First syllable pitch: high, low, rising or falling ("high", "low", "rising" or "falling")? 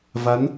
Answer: rising